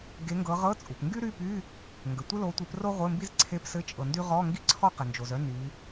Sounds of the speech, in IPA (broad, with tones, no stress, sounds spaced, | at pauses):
ɡ e˨˦ ŋ ɡ ɤ˨˦ ʁ ɤ˧˥˧ t͡sʼ u˩ p ŋ ɡ y˥ ɾ y˧˥˧ p y˧˥˧ | ŋ ɡ ə˩ tʷ ɘ˥ l o˨˦ tʷ e˨˦ p r o˥ ʁʷ ɘ˧˥˧ m b i˥ z ǀʰ e˧˥˧ p s ɘ˧˥˧ t͡ʃʼ ɤ˩ n d y˥ ʁ ɔ˧˥˧ ŋ ɡ i˥ ǀʰ ɔ˥ q ɘ˩ n d͡ʒ o˩ z œ˥ n y˨˦